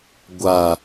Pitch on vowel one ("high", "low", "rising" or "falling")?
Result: low